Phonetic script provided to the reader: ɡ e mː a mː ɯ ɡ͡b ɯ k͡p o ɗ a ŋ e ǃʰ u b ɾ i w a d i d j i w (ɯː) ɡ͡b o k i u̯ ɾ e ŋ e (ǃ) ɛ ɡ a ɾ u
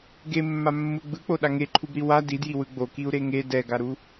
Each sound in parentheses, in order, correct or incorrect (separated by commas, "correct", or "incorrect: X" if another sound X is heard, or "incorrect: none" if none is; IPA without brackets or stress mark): incorrect: ɯ, incorrect: d